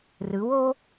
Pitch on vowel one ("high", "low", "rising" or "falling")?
rising